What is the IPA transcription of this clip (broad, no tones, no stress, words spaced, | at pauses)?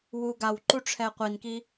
wuɡaw ǃuʈ͡ʂʰɛqʷinki